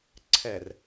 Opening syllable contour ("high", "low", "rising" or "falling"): low